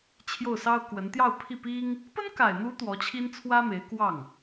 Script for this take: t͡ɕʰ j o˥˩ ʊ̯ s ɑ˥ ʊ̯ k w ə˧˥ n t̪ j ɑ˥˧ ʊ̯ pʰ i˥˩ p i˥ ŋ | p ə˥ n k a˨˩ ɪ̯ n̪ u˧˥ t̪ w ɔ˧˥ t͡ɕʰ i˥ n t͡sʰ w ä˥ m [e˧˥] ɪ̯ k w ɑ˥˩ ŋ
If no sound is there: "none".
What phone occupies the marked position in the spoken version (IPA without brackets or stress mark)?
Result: e˧˥